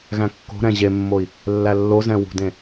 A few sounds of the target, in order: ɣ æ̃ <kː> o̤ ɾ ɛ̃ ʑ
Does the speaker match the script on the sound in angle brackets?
yes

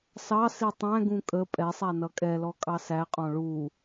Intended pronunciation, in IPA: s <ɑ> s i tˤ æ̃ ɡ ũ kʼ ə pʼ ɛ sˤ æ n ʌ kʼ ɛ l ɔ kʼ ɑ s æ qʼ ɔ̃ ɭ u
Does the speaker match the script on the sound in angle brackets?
yes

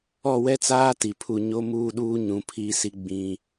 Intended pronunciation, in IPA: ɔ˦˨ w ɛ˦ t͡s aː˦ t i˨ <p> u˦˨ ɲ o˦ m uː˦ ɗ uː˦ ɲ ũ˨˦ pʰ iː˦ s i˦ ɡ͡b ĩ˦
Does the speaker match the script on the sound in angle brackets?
no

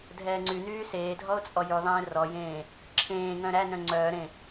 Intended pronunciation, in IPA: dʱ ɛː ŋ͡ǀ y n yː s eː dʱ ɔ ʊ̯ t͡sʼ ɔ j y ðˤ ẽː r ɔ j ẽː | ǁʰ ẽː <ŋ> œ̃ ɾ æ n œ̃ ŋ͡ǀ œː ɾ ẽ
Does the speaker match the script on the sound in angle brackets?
yes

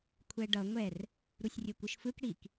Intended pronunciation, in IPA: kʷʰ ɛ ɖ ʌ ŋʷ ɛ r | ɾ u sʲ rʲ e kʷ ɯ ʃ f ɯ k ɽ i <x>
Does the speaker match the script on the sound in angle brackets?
no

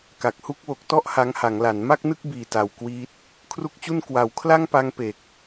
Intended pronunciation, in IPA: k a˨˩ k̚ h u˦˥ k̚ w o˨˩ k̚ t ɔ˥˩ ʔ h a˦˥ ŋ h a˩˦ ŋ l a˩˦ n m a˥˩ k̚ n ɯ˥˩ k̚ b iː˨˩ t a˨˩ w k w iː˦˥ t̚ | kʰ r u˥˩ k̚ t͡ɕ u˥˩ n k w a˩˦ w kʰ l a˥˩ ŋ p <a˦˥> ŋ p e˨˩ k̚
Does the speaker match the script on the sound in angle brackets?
no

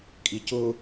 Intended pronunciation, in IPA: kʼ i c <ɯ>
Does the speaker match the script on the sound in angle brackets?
no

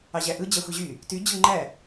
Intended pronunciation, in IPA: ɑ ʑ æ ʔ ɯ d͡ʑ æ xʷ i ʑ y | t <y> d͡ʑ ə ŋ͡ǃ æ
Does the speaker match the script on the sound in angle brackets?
yes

